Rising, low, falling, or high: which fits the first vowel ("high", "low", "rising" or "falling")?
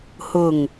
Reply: low